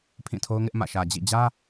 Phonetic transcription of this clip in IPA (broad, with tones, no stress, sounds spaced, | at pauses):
pʰ ĩ˦˨ tʰ o˦ ʊ̯ ŋ ɪ˦ ʔ m ä̰˦˨ ʃ ä˨ d͡ʑ ḭ˦˨ d͡ʑ ä˦